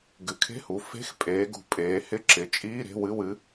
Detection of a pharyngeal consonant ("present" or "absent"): absent